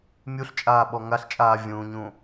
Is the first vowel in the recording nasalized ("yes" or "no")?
no